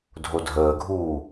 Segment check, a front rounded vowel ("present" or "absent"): absent